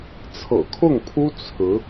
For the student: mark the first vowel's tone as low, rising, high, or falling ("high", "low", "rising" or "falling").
low